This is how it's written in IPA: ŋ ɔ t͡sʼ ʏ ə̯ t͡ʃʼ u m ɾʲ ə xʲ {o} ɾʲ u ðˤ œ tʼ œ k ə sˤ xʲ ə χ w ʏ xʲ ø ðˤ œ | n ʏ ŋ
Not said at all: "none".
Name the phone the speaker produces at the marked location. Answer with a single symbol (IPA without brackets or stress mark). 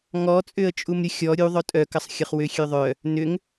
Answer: ɔ